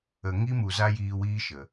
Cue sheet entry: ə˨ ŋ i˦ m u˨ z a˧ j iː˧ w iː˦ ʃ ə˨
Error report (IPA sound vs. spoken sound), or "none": none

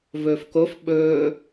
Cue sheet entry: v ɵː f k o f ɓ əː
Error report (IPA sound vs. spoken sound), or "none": əː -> ɵː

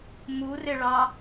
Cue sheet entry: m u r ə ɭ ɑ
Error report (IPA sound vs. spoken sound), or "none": ə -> ɪ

